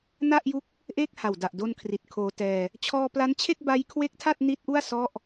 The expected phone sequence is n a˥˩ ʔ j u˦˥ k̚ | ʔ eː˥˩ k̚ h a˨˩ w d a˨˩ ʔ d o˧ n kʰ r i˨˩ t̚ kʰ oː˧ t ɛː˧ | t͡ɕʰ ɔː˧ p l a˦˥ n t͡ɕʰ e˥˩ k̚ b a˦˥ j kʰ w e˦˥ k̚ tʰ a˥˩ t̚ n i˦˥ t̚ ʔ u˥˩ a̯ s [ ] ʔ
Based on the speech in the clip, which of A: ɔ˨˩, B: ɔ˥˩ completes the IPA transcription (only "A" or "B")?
B